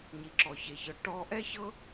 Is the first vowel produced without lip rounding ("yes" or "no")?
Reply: yes